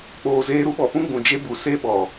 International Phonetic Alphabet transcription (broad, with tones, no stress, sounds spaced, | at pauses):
k͡p oː˨ z eː˧ ɾ u˦ ɓ ɔ˨ p ũ˧ ɡ͡b ũ˨ d͡ʒ e˧ b u˨ s e˧ ɓ ɔ˨